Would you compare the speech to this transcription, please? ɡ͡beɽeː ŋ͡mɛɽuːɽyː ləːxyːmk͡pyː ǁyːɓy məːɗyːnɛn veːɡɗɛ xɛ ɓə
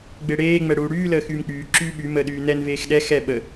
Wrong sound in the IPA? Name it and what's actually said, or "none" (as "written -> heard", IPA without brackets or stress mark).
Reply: ɡ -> x